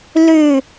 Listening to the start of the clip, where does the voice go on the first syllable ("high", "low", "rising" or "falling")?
falling